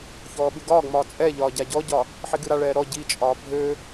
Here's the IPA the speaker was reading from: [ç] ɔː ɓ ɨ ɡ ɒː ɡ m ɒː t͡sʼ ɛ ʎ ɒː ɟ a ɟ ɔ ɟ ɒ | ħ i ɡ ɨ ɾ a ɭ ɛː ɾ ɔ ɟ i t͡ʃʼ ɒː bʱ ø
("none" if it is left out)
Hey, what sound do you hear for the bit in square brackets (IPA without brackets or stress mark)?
ç